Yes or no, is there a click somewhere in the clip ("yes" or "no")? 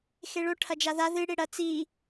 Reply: no